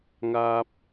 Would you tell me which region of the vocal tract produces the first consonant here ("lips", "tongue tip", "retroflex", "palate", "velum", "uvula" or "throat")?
velum